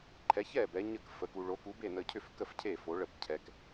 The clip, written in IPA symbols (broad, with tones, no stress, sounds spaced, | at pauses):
ǃʰ ɛ˨˥ ç ɛ˥˨ b ɛ˨˥ ɲ ə˥˨ k f ə˨˥ k u˧ ɭ o˨˥ k u˨˥ b e˥˨ n ə˧ cʰ ʏ˥˨ f k ə˥˨ f cʰ e˥˨ f o˨˥ ɭ ə˥˨ b cʰ ɛ˧ k